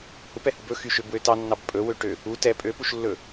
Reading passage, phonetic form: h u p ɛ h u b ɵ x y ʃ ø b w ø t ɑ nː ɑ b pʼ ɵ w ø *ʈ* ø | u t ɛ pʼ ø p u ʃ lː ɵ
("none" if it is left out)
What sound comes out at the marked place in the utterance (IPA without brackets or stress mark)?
ʈ